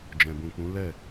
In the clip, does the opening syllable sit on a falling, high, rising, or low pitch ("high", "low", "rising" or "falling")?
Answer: low